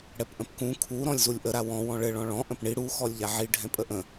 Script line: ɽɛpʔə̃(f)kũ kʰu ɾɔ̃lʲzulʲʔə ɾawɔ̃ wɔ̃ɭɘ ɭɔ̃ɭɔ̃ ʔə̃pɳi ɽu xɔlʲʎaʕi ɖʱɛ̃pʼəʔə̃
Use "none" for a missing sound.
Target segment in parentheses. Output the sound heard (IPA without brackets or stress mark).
p